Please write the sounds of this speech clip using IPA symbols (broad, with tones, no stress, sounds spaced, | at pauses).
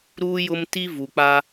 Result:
ɾ uː˦ j ʊ˦ m t i˦ v u˨ k͡p a˦